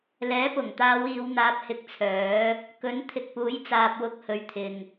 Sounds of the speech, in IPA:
l ɛː˨˥ p ʊ˨˩ ŋ t̪ aː˨˧ w iː˨˧ w n̪ aː˧ p̚ h ɪ˧ k̚ t͡sʰ œː˨˥ | k ɵ˨˥ n t̪ʰ ɪ˨ k̚ p uː˨˥ j t͡s aː˨ p̚ w ʊ˧ k̚ h ɵ˨˧ ɥ t̪ʰ ɪ˨ ŋ

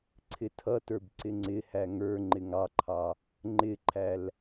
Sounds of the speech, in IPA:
ǀʰ ɪ tʰ ʌ t ə˞ b ǀ ɪ ŋ͡ǀ ɪ h æ ŋ ə˞ ŋ͡ǃ ɪ ŋ ɑ ǃʰ ɑ | ŋ͡ǃ ɪ ǃʰ æ l

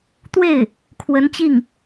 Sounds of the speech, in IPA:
t̪ w e˥˩ ɪ̯ | kʰ w ə˧˥ n t͡ɕ i˥˩ ŋ

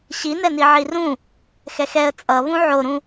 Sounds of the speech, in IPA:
ɕ i n ɛ n i ʕ i r ũ | x ɛ x ɛ ə̯ t͡sʼ ʌ β ũ ʕ o ɾ ũ

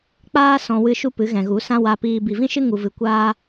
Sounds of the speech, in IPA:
k͡p aː˦ s ɔ̃˧ w ɨ˧ ʃ u˦ p ɨ˨˦ ɣ ɛ̃˨ ɣ u˨˦ s ã˦ w a˧ p iː˧ b i˨ v ĩ˦ ʃ ɨ˦ ŋ u˧ v ɨ˧ kʷ aː˦

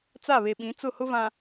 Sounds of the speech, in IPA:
t͡s a˦˨ β e˨ ɓ ĩ˨˦ t͡s ʊ˦˨ h ʊ˦ v ã˨

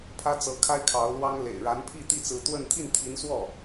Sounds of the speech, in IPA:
pʰ ä˥ t͡s ɤ˧˥ kʰ a˥ ɪ̯ kʰ ɑ˧˥ ʊ̯ l w ɑ˥ ŋ l ḛ˨˩ ɪ̯ ɻ a˧˥ n pʰ i˥˧ t̪ i˥˩ t͡s ɹ̩˧˥ t̪ w ə˥˧ n t̪ʰ i˥˩ n t̪ʰ i˧˥ n s w ɔ˥˩

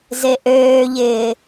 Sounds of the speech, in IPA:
z e ʔ øː ʎ ɪː

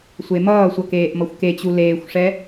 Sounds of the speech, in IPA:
sʷ e m ʌː sʷ ʌ k eː ʔ m ʌ xʷ k e t͡ɕ u l eː xʷ ʂ ɛ

